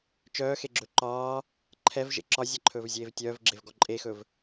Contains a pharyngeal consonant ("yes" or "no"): no